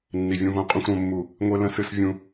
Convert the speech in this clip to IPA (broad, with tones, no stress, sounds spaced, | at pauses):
nː i˨ vʲ ũ˦ v õ˦ qʼ ũ˦ xʷ ɾ õ˦ mː u˦˨ | ŋʷ e˦ l ə̃˦ s ɨ˦ s vʲ ũ˦